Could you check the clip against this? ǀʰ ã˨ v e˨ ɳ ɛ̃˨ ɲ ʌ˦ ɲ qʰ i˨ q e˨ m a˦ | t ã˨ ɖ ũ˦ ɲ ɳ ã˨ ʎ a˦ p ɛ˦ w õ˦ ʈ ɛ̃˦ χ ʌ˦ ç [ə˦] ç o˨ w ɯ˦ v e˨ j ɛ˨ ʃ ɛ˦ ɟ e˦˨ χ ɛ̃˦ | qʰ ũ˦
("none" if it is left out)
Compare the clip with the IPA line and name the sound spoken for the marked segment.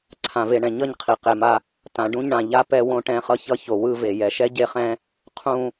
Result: ʌ˦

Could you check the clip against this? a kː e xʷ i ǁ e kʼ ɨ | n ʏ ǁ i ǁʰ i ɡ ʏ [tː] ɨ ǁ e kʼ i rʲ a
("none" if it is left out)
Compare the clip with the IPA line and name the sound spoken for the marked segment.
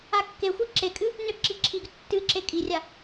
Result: tː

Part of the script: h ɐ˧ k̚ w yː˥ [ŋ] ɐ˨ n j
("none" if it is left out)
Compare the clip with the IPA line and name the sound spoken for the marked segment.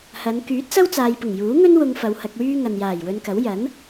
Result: ŋ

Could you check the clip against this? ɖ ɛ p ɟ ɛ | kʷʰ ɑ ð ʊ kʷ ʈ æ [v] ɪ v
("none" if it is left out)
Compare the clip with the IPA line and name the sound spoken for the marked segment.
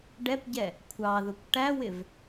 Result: w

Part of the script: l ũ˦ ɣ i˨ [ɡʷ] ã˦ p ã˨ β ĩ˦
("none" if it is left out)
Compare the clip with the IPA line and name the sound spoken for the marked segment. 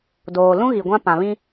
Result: ɡʷ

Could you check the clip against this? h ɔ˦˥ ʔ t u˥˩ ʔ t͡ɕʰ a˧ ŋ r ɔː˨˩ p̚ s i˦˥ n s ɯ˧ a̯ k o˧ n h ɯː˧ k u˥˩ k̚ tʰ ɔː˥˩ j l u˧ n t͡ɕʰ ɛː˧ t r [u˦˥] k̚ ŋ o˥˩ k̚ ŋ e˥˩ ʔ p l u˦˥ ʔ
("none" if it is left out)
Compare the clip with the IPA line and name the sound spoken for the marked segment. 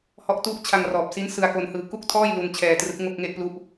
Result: ɯ˦˥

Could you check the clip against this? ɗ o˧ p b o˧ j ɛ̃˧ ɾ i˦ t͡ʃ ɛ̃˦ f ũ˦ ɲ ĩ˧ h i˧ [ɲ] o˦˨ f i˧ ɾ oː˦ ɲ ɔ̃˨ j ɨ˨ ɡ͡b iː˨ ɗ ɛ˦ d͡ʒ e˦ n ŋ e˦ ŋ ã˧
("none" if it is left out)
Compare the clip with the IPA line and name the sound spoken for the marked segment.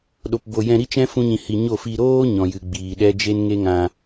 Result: ɲ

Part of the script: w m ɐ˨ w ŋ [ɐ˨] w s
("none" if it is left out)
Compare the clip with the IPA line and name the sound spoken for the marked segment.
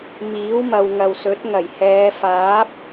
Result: ɐ˨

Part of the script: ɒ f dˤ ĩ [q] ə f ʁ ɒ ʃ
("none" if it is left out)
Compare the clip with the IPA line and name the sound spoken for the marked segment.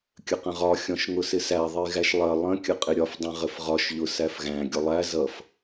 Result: ʁ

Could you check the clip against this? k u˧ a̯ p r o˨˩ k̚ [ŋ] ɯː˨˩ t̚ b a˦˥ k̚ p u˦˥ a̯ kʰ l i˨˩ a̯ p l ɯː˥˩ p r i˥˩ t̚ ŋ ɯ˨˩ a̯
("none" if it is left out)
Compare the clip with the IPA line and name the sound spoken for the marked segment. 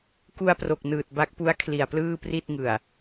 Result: n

